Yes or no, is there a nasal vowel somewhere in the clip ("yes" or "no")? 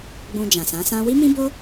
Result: yes